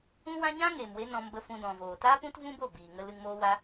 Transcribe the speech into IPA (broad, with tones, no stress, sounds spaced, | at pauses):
ũ˦ w ã˦ ɲ ã˦ ŋ eː˨ m w e˧ n ɔ̃˧ m b ə˧ f ũ˧ d ɔ̃˨ v oː˨ t a˦ p ũ˦ t v ũ˦ b o˦˨ b iː˨ ŋ ə˧ l ɨ˧ ŋ m oː˦ w a˦